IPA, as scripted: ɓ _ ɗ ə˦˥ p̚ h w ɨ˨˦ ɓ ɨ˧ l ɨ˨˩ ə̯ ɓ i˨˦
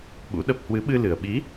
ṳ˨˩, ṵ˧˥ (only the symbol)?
ṵ˧˥